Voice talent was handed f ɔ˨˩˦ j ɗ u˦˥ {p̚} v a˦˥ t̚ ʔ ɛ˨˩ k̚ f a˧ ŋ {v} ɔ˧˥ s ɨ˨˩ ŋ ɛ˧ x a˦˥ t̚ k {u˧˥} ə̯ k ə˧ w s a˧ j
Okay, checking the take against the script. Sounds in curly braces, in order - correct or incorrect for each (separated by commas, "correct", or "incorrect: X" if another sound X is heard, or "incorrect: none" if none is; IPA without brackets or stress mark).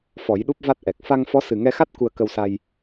correct, incorrect: f, incorrect: u˧